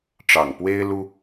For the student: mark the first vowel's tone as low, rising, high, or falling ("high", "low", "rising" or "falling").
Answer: low